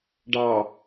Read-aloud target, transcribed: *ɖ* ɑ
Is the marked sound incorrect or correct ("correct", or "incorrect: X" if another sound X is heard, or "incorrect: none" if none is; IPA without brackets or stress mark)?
correct